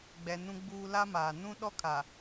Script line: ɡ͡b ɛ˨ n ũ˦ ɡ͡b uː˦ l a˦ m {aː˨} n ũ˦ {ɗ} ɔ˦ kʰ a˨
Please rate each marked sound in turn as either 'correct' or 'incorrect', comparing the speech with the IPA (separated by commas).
correct, correct